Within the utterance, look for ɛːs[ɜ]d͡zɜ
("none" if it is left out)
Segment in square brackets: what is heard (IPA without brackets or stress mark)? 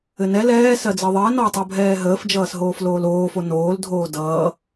ɜ